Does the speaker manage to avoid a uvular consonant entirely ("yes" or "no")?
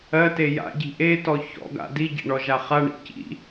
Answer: no